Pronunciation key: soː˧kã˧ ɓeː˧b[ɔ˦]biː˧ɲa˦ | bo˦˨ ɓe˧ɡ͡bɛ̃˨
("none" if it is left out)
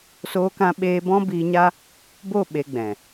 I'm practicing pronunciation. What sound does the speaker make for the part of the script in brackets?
ɔ̃˦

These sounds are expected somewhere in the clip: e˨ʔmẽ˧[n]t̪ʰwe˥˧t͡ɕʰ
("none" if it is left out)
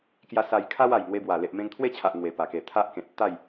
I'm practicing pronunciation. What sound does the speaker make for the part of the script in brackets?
ŋ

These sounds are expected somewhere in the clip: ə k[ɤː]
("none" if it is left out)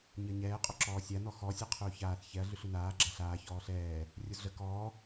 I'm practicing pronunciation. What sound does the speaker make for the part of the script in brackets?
ɔː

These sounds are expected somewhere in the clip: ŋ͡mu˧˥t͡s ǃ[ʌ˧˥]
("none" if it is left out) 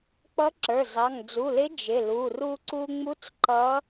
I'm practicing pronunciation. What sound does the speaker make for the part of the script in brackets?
ʌ˧˥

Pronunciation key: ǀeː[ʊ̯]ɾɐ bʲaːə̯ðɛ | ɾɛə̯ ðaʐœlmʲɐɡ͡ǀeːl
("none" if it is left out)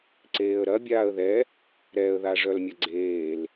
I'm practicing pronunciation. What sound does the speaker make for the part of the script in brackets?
ə̯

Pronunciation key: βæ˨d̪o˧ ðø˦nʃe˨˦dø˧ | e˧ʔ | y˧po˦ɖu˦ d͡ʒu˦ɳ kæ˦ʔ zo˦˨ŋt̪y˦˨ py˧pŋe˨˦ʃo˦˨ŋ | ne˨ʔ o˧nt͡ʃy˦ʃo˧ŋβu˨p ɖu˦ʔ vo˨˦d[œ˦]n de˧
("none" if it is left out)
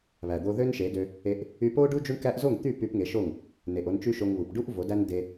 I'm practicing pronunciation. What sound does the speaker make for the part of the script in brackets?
æ˦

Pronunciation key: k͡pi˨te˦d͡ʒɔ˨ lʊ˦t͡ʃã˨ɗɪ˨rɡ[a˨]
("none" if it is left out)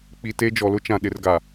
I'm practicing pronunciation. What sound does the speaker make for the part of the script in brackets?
a˨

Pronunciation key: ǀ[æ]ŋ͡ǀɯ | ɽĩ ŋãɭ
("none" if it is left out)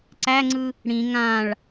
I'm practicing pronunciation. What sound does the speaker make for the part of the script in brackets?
æ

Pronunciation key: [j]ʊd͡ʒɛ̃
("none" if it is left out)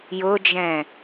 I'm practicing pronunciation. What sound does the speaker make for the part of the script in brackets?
j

